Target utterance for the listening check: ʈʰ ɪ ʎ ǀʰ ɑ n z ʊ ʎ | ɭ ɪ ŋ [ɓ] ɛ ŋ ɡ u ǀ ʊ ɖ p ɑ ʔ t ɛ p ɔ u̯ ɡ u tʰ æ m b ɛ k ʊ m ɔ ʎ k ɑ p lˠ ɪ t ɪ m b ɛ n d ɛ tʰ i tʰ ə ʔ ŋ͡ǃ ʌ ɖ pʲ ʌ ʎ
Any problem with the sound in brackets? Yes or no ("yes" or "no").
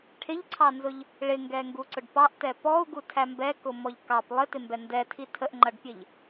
yes